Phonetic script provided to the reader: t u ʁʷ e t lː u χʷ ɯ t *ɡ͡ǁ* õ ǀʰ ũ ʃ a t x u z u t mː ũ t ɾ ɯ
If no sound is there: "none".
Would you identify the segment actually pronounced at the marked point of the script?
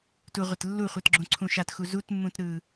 ɡ͡ǁ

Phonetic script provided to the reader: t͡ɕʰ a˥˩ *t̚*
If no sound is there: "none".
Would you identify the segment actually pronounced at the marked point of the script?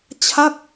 k̚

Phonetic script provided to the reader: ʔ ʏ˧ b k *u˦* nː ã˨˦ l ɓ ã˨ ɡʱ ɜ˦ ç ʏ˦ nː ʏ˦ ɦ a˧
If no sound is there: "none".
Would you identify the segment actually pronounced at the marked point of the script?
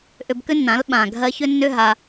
ʏ˦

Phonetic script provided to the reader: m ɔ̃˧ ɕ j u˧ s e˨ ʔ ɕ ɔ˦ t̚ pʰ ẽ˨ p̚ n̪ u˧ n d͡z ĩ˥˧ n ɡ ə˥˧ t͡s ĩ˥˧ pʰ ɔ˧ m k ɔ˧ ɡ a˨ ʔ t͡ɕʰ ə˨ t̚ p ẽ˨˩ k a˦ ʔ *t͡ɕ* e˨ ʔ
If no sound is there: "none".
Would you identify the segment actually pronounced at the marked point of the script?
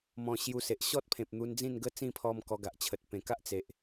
t͡s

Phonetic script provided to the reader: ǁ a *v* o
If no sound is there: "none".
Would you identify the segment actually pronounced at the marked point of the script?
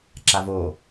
v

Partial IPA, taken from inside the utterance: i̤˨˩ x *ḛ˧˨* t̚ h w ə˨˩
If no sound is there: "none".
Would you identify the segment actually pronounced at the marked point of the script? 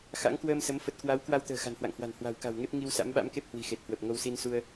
e˨˩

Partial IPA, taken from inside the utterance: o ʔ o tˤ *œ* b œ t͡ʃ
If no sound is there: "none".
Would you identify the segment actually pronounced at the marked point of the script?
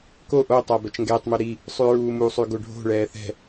æ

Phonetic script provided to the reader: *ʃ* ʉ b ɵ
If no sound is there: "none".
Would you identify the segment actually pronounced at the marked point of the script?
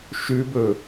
ʃ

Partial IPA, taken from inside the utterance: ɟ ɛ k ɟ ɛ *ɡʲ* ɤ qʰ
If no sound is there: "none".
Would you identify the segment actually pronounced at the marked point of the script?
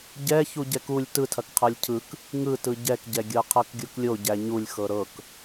ɡʲ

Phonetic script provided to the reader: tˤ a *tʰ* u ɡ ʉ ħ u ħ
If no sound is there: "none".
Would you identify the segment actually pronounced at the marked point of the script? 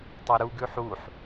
ɾ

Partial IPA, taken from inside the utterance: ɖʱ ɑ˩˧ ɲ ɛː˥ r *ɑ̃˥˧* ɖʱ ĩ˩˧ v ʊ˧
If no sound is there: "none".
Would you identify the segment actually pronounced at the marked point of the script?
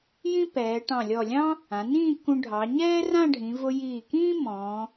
ã˥˧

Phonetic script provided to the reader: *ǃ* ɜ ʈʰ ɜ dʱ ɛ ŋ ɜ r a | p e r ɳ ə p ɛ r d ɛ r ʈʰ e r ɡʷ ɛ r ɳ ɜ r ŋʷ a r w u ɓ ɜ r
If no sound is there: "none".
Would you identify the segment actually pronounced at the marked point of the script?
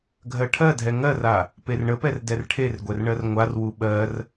ɡʱ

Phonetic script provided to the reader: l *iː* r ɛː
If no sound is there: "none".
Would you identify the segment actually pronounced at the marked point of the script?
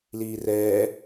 iː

